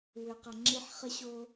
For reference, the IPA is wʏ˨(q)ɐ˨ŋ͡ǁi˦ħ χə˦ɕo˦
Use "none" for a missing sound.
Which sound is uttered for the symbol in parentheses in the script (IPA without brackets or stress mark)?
q